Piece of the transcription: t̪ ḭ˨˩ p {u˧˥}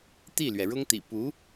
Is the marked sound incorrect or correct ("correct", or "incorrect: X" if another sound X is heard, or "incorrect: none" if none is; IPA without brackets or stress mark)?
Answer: correct